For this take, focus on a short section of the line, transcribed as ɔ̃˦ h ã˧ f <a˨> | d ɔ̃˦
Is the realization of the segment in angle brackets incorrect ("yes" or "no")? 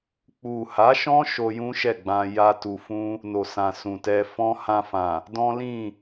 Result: yes